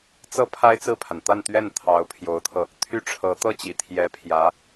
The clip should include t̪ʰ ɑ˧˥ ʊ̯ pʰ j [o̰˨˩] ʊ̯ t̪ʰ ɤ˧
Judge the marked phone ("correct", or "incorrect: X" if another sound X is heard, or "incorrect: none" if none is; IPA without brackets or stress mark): incorrect: o˧˥